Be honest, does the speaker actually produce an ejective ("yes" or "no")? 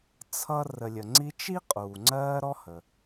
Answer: yes